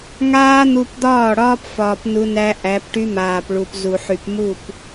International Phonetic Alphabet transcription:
ŋ aː˦ n̪ u˦ p d̪ ɒː˦˨ ɽ ɒː˦ p f ɒː˨ p n u˦ n æ˦ ʔ æ˨˦ p ʈ y˦ m aː˨ p ɭ u˨ p z u˨ ħ y˨ p m u˦˨ p

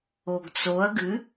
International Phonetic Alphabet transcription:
o ɡ t͡s o ɐ̯ ɡ ɨ

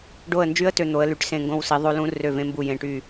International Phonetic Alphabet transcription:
ɖ o˧˩ ə̯ n d͡ʒ y˧˥ ə̯ t ø˧˩ n̪ o˩˧ ə̯ l y˩˧ ʈ s ẽ˧˩ ŋ ɡ õ˧ w s i˩˧ ðˤ o˧˥ l ũ˧˥ r ø˧˩ v ẽ˧ m b u˧˩ j ẽ˧˩ ʈ y˧˩

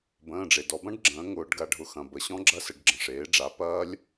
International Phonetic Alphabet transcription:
b ə̃ː˩˧˩ ɖ͡ʐ e˩ d ɔ˩˧ b ɐ̃˦˥ ɖ ɡ͡ǁ ə̃ː˩˥ ŋ ʊː˩˧ ɖ ɡ a˩˧ ɖʱ ʊ˩˥ x ɐ̃˩ b ə˩˧ ɕ ɔ̃˦˥ ɡ͡ǁ ɐ˦˥ s ə˩˧ ɖ ɡ͡ǁ ə̃˩ ʂ eː˩˥ ɖ͡ʐ a˩˥ p ɐː˦˥ lʲ

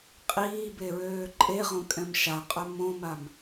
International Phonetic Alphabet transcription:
qʼ iː b e ɹ øː ǃʼ e ʁ õ kʼ ɛ̃ m ʃ a qʼ œ m õ m a m

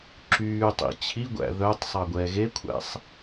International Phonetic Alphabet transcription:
ǁ yː tˤ ḭ t͡ɕʰ i ɡʷ æ̰ ð œ tˤ sˤ ɑ ɡʷ ɛː ɣ e kʷʰ æ̰ sˤ

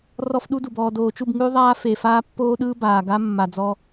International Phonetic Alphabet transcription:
r ɔ˦ f ɗ u˦ d u˨ b ɔː˨ d oː˨ t͡ʃ u˦˨ b ŋ ʉ˦ ðˤ aː˦ f e˨ f aː˦ pː oː˦ ɗ ɯː˦ b aː˨ ɡ a˦ mː a˨ d͡z ɔ˦

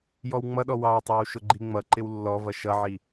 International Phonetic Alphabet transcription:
j ɔ w ŋ͡m ʌ ɗ ɔ w ɑ w tˤ ɑ w ʃ ʊ ɡ͡ǃ i ŋ͡m ʌ ǃ ɪ w lː ɔ v ʌ ʃ ʌ ʕ i

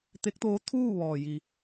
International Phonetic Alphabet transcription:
t̪ e˧˥ k̚ t̪ oː˧˥ t̪ʰ uː˥˨ ʋ ɔː˩ j i˩

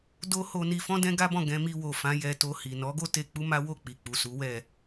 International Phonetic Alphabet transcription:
d o˦ h o˧ n i˧ f ɔ̃˦ d ɛ̃˦ ɡ a˦ b ɔ̃˦˨ ɡ ɛ̃˧ m i˧ w o˨ f ã˨˦ j ɛ˧ t o˧ h i˨ n ɔ˨˦ ɡ o˦ t e˧ k͡p u˦ m a˦ w o˦˨ k͡p i˨ k͡p u˨ s u˨˦ w ɛ˦˨

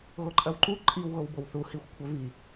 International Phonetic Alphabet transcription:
ɣ o ǃʼ ɐ w ǃ u ǃʼ i w ɣ o w b o w θ u h i xʷ kʷʰ œ v i

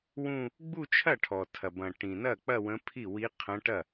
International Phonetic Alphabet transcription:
w ũ˥˧ | ɡ͡b u˥˧ t͡ʃʰ ɐ˥˩ ʈʰ ɔ˩ tʰ ɐ˩ b ɐ̃˩ ʈ ĩ˩ n ɐ˥˩ k͡p ɐ˥˧ w ə̃˧˥ pʰ i˥˩ w i˧˥ qʰ ɐ̃˧˥ ʈ ɐ˥˩

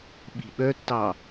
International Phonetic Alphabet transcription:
ɓ i̤ ɓ œ tː ɑ

